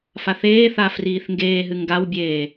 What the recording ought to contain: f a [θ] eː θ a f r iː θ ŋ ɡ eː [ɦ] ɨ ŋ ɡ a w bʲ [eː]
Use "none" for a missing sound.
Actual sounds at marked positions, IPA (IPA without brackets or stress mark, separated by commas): θ, ɦ, eː